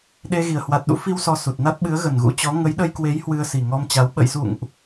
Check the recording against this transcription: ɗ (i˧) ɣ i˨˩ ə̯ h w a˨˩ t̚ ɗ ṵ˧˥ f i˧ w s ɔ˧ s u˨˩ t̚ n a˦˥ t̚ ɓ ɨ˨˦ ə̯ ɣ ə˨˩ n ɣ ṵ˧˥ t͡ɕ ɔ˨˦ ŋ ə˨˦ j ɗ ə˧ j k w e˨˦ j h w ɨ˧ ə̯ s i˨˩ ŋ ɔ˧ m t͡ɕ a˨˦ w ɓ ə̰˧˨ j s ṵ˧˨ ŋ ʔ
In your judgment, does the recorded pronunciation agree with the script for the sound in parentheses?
no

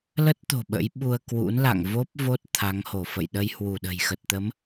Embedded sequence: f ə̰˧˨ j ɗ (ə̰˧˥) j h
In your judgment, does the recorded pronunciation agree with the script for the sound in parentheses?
no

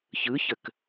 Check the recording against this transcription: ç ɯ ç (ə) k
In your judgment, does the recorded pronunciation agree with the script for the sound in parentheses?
yes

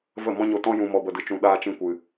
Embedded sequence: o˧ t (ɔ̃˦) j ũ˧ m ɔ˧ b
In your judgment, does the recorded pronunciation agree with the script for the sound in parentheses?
yes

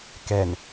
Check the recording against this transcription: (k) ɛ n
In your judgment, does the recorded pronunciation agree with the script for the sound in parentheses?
yes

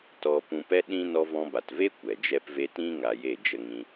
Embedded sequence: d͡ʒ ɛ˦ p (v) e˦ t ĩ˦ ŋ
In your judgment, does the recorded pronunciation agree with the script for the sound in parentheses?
yes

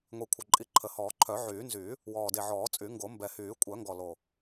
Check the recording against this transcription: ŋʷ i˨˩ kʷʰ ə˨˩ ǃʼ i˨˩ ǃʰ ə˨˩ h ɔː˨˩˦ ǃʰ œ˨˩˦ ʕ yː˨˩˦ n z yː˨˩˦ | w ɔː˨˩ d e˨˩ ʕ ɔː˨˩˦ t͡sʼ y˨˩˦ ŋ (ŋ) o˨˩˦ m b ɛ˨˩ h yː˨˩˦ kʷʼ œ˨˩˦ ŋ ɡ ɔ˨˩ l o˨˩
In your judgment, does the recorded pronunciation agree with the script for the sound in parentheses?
no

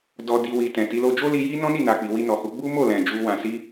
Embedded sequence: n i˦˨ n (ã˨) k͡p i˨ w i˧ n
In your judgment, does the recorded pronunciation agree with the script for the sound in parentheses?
no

